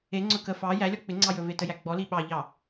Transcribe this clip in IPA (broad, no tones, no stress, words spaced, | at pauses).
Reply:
eŋ͡ǀɵ kə fɑ jælʲɔ k͡pɪŋ͡ǀɑ jɵvetəjæ ɡ͡bɔli ɓɑʎɑ